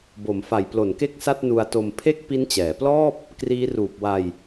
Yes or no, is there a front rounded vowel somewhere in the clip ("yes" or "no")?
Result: no